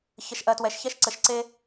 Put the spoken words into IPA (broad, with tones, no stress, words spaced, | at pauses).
çə˨ʃʔɜ˨twɛ˨ʃçɛ˥ʃ ǀə˨ʃǀe˥